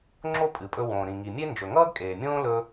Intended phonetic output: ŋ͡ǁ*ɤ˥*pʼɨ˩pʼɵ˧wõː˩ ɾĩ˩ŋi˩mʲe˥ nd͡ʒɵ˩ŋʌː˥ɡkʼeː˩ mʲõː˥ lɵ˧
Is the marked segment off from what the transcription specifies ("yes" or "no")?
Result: yes